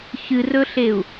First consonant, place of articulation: palatal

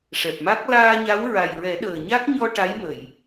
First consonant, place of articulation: retroflex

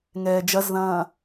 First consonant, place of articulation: velar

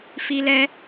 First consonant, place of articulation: labial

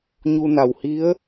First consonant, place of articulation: palatal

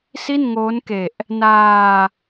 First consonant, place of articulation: alveolar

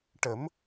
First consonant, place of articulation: retroflex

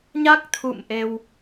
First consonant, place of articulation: palatal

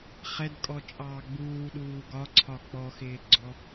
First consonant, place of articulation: uvular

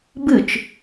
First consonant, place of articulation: labial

